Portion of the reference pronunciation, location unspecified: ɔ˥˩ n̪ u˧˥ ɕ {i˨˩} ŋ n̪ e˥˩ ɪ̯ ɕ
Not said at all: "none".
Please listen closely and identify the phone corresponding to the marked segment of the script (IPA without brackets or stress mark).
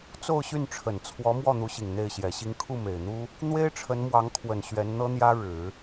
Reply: i˨˩